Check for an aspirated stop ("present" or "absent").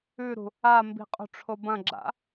present